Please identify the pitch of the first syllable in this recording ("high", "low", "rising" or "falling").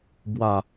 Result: low